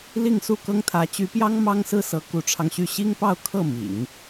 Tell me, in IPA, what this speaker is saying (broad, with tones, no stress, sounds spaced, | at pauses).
l i˥˧ ŋ s u˥˩ k ɤ˥ ŋ t̪ʰ ä˧˥ t͡ɕ y˧˥ p j ɑ˥ ŋ m ɑ˥ ŋ s ɹ̩˥˩ s ɤ˧˥ k u˧˥ ʈ͡ʂʰ ɑ˧ ŋ ɕ y˥˩ ɕ i˥ ŋ p ɑ˥˧ ʊ̯ kʰ ɤ˥˩ m ḭ˨˩˦ ŋ